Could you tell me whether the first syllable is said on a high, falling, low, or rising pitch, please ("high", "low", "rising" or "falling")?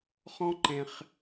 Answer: high